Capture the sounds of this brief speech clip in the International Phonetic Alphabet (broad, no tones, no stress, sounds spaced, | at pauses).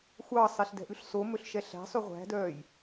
xʷ ɑ sˤ ɛ ɬ d ɛ̤ ʔ ʉ ɬ s o m ɵ ɬ ʃ ɛ ɬ æ̤ sˤ ʉ ʁʷ æ̤ d œː j